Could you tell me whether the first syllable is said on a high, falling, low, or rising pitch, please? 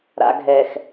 low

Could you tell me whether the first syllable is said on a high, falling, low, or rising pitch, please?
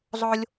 high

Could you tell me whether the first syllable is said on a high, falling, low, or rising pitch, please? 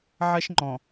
high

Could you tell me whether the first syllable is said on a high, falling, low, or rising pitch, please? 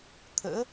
rising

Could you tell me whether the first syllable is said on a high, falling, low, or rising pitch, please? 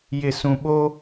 low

